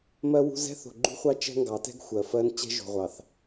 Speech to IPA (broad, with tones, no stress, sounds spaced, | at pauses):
m ɜ˦ w ṳ˦ z ɛ̤˦ θ o̤˨ ɡ͡ǃ ṳ˦ χʷ ɑ˦ t͡ʃ ɛ̤˦ ŋ ɡ ɑ˨˦ t ɛ̤˦ ɡ xʷ ɜ˨ f ɜ˦ n t͡ɕ ɛ̤˦ ʒ o̤˨ ʁʷ ɑ˨ θ